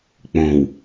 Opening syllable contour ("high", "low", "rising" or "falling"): low